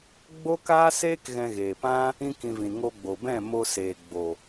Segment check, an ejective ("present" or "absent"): absent